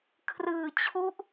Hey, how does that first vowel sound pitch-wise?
low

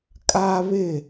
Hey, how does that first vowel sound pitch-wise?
high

